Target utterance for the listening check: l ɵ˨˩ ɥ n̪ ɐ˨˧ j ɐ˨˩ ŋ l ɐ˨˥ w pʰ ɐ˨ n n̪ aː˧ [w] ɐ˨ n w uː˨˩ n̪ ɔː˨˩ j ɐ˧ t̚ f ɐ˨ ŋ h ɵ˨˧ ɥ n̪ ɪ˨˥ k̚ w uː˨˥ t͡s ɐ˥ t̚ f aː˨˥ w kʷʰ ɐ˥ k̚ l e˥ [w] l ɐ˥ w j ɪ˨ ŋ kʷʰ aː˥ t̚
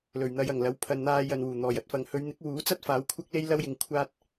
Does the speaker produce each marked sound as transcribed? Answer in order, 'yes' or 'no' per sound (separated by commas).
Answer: no, no